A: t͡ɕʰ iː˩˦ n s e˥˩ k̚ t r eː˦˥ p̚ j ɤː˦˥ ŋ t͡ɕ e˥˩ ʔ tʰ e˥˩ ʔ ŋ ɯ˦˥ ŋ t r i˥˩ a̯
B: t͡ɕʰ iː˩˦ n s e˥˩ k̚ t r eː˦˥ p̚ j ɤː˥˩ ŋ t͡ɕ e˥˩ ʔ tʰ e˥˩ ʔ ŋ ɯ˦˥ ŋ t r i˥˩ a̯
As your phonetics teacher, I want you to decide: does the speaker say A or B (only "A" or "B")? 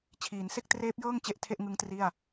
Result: B